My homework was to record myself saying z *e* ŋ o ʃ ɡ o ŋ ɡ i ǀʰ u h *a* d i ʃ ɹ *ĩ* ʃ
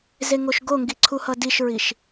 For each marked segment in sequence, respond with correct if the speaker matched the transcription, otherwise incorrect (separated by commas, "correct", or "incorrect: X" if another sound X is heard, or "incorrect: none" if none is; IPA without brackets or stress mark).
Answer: correct, incorrect: ʌ, incorrect: i